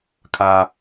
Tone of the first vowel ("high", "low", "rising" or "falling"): high